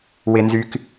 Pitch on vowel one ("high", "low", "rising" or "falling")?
high